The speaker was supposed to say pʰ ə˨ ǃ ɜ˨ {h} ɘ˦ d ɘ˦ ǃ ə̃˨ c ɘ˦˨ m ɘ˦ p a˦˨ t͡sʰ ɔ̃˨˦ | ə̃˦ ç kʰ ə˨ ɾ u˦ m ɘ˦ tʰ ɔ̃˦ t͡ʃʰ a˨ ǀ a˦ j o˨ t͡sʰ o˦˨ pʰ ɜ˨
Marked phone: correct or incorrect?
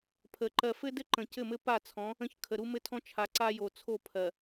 incorrect